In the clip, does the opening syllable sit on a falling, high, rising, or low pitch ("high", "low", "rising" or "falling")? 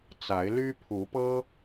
rising